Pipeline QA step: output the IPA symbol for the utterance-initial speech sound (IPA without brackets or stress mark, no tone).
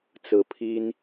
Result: t͡s